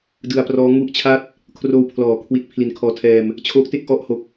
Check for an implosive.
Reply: absent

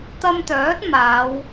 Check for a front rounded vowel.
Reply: present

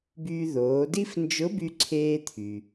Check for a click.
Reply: present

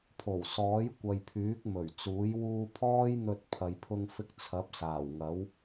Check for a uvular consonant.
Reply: absent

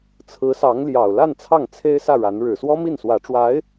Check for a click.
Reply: absent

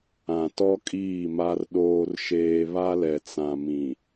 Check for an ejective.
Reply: present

